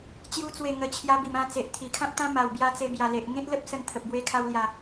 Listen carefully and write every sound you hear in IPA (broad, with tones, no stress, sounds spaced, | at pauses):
t͡ɕ j u˧ t͡s w e˨˩ ŋ ə˨˩ t͡ɕʰ j a˧ b i˨˩ m ã˧ t͡s e˨ ʔ t̪ʰ i˨˩ kʰ ã˦ p̚ t̪ ã˦ m a˨˩ w b j a˧ t͡s e˧ b j a˨˩ l e˨ ʔ ŋ ẽ˦ t̚ l ə˦ p̚ s ə˧ n t̪ʰ ə˨ p̚ b w e˧ kʰ a˧ w l j a˨˩